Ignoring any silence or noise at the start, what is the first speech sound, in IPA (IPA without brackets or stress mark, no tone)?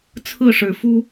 t͡sʰ